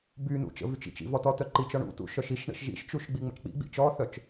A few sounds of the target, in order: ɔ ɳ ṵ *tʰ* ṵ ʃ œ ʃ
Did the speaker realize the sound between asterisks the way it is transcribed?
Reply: no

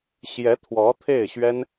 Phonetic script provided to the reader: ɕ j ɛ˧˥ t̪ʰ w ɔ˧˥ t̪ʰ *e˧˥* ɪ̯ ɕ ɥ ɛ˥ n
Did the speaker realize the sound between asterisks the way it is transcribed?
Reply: no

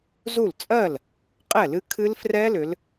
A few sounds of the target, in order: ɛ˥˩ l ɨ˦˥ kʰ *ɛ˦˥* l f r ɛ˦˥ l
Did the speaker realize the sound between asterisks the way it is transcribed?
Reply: no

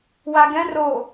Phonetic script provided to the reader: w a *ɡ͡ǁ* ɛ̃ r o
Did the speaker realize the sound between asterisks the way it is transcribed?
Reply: no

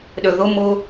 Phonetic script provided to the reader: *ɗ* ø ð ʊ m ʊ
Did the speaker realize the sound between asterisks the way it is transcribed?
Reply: yes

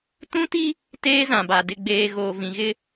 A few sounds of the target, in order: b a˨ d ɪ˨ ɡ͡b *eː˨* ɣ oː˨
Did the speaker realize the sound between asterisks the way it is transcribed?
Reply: yes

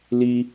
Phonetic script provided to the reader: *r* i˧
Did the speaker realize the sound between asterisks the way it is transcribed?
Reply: no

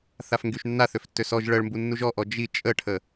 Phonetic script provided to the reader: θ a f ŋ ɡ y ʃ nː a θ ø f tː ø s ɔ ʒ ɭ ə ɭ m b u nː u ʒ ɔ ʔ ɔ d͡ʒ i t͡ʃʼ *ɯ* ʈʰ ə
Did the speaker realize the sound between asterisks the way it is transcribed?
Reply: no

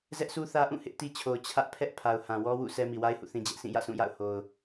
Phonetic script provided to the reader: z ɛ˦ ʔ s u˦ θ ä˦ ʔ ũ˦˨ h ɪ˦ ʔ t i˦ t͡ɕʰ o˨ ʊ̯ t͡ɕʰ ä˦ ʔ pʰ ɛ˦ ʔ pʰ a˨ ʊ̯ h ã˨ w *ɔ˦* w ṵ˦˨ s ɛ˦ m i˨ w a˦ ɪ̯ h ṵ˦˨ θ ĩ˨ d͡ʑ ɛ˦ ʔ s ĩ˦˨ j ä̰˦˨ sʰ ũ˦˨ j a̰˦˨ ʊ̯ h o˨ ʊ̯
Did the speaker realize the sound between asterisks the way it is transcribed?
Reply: yes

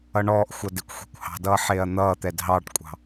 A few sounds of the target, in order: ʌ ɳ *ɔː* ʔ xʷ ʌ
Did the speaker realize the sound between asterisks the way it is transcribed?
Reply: yes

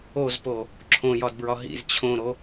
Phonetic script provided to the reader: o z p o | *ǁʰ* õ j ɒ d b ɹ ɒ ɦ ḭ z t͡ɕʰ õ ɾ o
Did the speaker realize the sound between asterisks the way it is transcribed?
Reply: yes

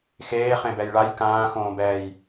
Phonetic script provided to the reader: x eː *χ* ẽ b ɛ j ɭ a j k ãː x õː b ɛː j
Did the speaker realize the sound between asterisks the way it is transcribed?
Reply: yes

